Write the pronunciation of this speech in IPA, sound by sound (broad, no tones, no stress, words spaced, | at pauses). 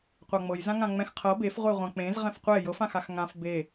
qʷaŋ͡mɤj zãŋãŋ͡mɛ̃x qʰɤ befʁʷeʁʷã k͡pẽz ʁɛ̃fqʷɛ jɤfãxax ŋãf be